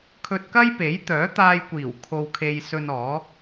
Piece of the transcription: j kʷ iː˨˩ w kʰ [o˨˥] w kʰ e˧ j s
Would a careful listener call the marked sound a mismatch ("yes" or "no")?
yes